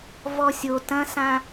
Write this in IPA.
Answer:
v ɔ sʲ o t ɐ̃ s ã

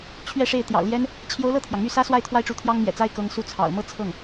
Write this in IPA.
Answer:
t͡ɕʰ ɥ ɛ˥˧ ʂ e˥˩ ɪ̯ t̪ j ɑ̰˨˩ ʊ̯ l j ɛ˥ n | t͡ɕʰ j o˧˥ ʊ̯ l ɤ˥˩ t̪ʰ j ɑ˩ ŋ m y˥˩ s ä˥ s w a˥˧ ɪ̯ t̪ʰ w a˥˩ ɪ̯ ʈ͡ʂ u˧˥ t̪ʰ j ɑ˥ ŋ m j ɛ̰˨˩ t͡s a˥ ɪ̯ k ɤ˧˥ ŋ s u˥˩ t͡sʰ ɑ̰˨˩ ʊ̯ m ɤ˥˧ t͡sʰ ɤ˥˩ ŋ

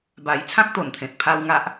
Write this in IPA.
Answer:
b a˧ j t͡sʰ ã˦ k̚ t̪ o˨˩ n t̪ʰ ẽ˨ t̚ pʰ a˧ w ŋ a˦ ʔ

